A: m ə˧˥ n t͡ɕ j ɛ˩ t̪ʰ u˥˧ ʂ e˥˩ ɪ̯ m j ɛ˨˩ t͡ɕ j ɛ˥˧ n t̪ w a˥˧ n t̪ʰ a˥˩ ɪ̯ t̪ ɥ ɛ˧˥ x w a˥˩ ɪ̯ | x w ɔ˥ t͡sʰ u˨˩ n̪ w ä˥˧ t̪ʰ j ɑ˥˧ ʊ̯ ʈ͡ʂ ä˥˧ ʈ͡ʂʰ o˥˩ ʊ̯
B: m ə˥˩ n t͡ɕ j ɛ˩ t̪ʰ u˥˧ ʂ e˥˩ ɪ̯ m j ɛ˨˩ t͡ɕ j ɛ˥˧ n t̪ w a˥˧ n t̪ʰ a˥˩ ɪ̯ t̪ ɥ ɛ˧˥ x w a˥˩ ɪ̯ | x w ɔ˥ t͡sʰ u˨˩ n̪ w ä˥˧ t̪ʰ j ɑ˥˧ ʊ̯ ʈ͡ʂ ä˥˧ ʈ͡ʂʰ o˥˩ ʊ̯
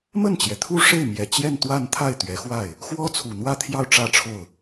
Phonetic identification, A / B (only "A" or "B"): B